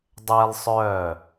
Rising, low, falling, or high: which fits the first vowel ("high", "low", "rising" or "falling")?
high